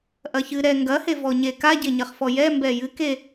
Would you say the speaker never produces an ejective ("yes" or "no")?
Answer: yes